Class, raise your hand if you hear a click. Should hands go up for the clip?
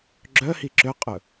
yes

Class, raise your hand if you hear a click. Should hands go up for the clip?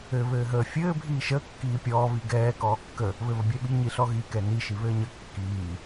no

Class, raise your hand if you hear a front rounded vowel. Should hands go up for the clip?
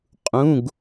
no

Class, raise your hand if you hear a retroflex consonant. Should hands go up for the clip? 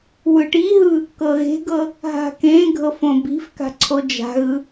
yes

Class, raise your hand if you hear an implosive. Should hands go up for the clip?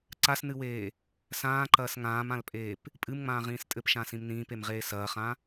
no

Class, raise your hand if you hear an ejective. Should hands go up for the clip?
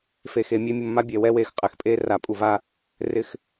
yes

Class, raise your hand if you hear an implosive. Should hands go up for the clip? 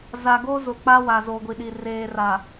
yes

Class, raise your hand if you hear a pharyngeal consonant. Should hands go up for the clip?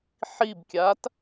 yes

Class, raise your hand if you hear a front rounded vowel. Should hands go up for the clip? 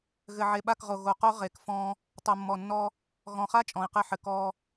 no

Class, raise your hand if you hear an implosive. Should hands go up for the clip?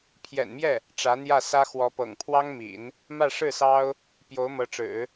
no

